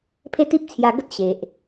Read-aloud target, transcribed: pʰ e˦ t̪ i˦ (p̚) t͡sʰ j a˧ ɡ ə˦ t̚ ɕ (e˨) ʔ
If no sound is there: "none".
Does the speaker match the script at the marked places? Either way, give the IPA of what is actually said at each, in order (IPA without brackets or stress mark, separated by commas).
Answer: p̚, e˨